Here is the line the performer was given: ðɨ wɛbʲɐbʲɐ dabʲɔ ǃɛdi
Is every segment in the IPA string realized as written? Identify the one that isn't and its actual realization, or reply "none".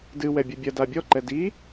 ð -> d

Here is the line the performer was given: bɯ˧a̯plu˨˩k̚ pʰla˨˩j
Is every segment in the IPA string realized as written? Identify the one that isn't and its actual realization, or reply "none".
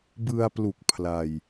a˨˩ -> a˧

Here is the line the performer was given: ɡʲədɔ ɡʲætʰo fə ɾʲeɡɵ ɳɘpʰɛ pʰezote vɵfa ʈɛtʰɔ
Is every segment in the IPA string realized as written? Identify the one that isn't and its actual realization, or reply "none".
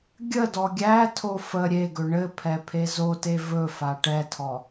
none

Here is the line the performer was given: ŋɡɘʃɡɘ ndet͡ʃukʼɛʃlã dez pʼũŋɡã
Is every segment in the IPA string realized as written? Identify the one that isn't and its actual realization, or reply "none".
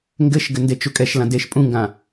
z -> ʃ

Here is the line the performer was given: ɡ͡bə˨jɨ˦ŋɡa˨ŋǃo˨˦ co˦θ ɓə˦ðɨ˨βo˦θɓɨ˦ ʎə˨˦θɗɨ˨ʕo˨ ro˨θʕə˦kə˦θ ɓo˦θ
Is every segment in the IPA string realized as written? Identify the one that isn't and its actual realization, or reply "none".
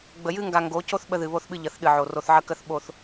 ǃ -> ɡ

